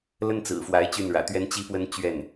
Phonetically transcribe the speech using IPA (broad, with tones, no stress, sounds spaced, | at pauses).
l ə˥ n t͡s ɹ̩˨˩ f w a˧˥ ɪ̯ t͡ɕ y˥˩ n ɻ ä̰˨˩ t̪ ɥ ɛ˥ n t͡ɕ i˥ p w ə˥ n t͡ɕ ɥ ɛ˥˩ n